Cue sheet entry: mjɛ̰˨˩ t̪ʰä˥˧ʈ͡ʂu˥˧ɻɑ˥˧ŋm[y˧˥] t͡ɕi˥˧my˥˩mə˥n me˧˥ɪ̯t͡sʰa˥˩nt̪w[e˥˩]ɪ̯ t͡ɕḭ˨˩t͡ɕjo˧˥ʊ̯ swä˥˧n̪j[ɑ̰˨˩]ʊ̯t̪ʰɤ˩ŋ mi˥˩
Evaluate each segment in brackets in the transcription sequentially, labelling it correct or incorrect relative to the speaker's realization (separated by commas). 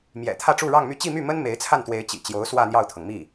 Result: incorrect, incorrect, incorrect